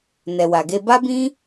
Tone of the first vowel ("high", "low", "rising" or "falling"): low